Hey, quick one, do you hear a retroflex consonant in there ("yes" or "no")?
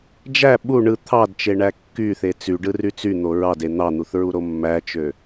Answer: yes